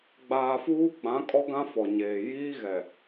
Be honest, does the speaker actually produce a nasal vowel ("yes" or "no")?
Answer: yes